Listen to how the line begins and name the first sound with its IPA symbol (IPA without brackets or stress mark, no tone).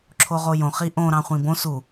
ǁʰ